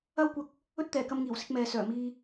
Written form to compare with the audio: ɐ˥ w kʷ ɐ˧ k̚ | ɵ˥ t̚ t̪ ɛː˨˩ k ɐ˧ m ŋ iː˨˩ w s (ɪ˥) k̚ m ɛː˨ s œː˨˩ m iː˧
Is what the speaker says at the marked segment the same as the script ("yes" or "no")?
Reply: no